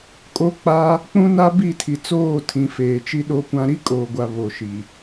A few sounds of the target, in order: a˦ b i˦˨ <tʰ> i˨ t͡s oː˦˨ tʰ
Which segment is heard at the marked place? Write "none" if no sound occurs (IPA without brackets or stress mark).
tʰ